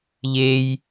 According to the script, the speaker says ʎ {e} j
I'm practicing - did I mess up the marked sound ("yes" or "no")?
no